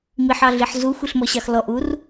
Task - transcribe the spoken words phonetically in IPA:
m i ħ ɑ ɮ i ħ z u xʷ i ɬ m ɔ ɕ ɑ x l ɔ ʔ u r

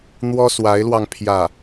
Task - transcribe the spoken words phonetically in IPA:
n̪ w ɔ˥ s w a˧˥ ɪ̯ l w ɑ˧ ŋ pʰ j ä˥˩

